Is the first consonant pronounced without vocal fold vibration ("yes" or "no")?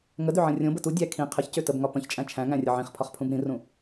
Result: no